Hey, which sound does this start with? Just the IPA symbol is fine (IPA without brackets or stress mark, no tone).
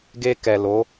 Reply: ɡ